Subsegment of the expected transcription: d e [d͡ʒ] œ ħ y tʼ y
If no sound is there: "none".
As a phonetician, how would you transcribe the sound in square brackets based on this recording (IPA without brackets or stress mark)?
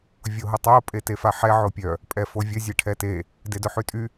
d